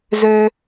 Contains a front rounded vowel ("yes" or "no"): yes